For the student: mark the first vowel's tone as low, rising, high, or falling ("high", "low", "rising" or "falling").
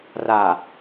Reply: low